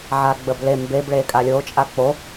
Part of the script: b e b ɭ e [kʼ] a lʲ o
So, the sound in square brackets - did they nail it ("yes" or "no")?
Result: yes